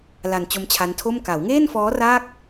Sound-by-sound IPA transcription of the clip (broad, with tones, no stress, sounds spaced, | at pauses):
l a˧ n t͡ɕ o˦˥ m t͡ɕʰ a˦˥ n tʰ o˥˩ m k a˩˦ w ŋ eː˥˩ n f ɔː˦˥ r a˥˩ k̚